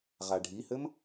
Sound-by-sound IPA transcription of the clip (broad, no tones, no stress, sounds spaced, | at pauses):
ʁ a ɖʱ i h ɘ m